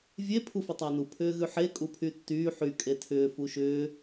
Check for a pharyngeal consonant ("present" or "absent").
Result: present